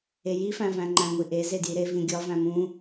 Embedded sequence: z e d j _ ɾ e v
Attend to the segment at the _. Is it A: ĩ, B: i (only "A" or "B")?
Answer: B